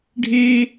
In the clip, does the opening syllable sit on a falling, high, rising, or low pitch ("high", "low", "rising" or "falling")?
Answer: high